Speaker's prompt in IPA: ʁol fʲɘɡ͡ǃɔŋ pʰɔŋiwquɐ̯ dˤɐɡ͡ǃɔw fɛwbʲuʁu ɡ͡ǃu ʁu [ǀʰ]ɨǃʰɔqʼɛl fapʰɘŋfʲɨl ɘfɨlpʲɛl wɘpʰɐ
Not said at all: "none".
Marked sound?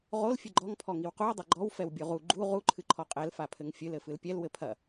ǃʰ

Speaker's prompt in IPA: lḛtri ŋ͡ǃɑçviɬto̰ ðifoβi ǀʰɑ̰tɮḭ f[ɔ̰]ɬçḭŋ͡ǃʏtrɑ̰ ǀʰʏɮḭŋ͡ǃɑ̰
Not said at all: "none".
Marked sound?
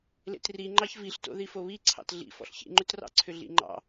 ɔ̰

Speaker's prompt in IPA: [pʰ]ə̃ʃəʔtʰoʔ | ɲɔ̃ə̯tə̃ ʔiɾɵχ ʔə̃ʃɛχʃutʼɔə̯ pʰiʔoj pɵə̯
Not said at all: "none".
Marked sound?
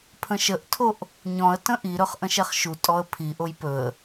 pʰ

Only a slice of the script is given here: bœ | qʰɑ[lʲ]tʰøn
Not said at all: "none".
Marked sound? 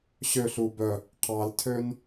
l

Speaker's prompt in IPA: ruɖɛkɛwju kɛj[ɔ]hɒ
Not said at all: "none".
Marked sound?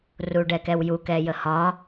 ə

